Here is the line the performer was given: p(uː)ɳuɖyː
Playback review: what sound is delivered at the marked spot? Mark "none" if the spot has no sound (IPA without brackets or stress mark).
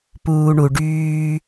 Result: uː